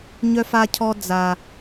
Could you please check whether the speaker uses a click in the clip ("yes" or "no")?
no